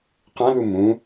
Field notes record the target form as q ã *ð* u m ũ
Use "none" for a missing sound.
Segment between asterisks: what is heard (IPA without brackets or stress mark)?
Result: ð